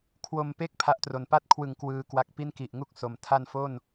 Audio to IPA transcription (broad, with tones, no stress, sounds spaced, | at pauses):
kʰ w o˧ m p e˥˩ k̚ pʰ a˥˩ ʔ t r o˧ n p a˦˥ t̚ kʰ w ɯ˩˦ ŋ k w ɯː˦˥ k w a˦˥ k̚ p i˥˩ n k i˨˩ ʔ ŋ u˥˩ k̚ s o˩˦ m tʰ a˧ n f o˥˩ n